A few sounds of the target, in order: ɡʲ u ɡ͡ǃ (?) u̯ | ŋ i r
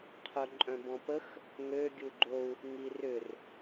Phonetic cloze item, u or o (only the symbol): o